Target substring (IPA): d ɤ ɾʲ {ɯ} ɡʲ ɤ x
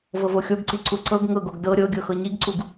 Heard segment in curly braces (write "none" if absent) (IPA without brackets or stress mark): ɤ